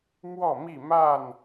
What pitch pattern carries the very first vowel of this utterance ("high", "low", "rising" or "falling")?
falling